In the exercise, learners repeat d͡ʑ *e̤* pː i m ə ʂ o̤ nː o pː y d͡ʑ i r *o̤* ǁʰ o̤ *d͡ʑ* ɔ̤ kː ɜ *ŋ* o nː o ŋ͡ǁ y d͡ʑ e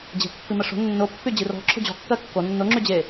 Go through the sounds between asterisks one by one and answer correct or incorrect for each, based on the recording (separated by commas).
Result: correct, incorrect, correct, incorrect